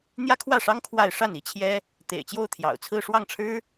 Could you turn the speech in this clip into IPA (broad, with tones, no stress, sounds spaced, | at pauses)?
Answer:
n̪ j ä˥ kʰ w ä˥˩ ʂ ɑ˥ ŋ kʰ w a˥˧ ɪ̯ ʂ a˥˩ n i˥ t͡ɕʰ j ɛ˥ | t̪ ḛ˨˩ ɪ̯ t͡ɕ j o˥˩ ʊ̯ t̪ʰ j ɑ̰˨˩ ʊ̯ t͡sʰ ɹ̩˥˧ ʂ w ɑ˥˩ ŋ ʈ͡ʂʰ ɻ̩˥